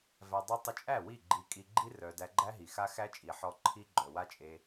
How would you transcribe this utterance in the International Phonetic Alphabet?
væ˧dˤœ˦ tˤə˧t͡ʃʼæ˦˨ wi˦˨ ɡ͡ǃi˧kʼi˧ ɡ͡ǃi˦rœ˨ dæ˧ɡ͡ǃæ˦ɦi˨xa˦ xæ˦t͡ʃʼi˨ħɔ˧ ǃʰi˦ɡ͡ǃœ˨wa˦t͡ʃʼe˧

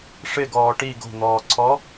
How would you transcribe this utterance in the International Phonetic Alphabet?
ʂɪɡɔː ʈi ɡo̤n̪ɔːǀʰɔ

